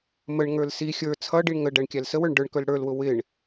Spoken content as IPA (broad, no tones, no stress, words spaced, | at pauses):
məɳŋə˞l si xʲə˞ t͡sʰʌɖiɳ ŋə ɖæɳkʲælsəwə˞ɳ ɖə˞ɳkə˞l ɽə˞lwʊ wɪɳ